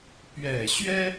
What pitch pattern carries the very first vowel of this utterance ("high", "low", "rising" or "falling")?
low